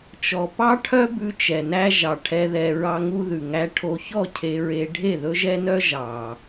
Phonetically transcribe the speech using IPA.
t͡ʃ ɔ˨ p ɑ˦ ʈʰ œ˦ b ʉ˧ t͡ʃ ɛ˨ n æ˦ ʒ ɑ˨ ʈʰ ɛ˧ ð ɛ˧ ɹ ɑ˧ ŋ u˦ ð ʉ˨ ŋ æ˦ ʈʰ o˧ ç ɔ˦˨ cʰ e˧ ɹ e˧ ɖʱ e˦˨ ð ɵ˦ ʒ ɛ˦ n œ˦ ʒ ɑ˨

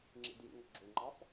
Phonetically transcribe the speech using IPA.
ŋ͡ǁ ḭ d j ḭ ŋ ʌ ɡ͡ǁ u ŋ͡ǃ ɑ f

